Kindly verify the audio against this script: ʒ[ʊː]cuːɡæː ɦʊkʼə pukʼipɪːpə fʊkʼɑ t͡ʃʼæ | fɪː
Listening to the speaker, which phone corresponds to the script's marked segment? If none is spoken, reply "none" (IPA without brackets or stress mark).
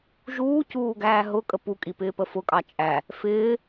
uː